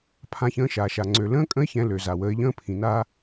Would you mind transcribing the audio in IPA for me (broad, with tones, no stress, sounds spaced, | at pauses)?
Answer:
pʰ ã˧ ç ə̃ː˧ ʃ aː˩ ʃ a˩ ŋ͡ǀ ø˩ l ə̃ː˧˥ kʼ ə̃˧˥ ɪ̯ ç ɛ̃˩˧ l ø˩ z a˩ w əː˩˧ ɪ̯ ʎ ə̃ː˧ pʰ ĩ˩ n aː˧